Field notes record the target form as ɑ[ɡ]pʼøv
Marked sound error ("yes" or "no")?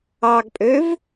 no